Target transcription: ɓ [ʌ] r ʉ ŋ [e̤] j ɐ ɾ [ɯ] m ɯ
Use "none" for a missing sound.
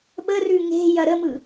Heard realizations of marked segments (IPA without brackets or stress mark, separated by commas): ə, e̤, ə